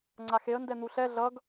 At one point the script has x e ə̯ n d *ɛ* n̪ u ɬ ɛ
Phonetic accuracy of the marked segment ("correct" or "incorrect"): correct